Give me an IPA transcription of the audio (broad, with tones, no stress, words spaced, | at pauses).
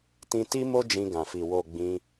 tĩ˧ti˦ mo˦d͡ʒĩ˧ɡã˨fi˨ wo˨ ɡ͡bĩ˧